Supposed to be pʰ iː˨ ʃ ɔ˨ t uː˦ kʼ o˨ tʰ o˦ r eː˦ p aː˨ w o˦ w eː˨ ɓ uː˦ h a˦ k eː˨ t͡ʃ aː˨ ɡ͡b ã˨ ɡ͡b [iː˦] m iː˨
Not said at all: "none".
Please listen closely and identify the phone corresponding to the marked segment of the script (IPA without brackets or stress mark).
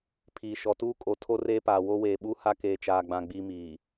iː˦